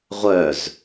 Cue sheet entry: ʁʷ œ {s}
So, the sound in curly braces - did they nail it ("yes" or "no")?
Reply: no